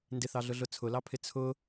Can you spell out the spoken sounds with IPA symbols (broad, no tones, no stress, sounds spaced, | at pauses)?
n d ɪ θ ɑ ɮ ʊ ɮ ʊ t͡sʰ ʊ l ɑ pʰ ɪ t͡sʰ ʊ